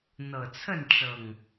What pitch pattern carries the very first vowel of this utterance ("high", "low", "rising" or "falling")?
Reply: low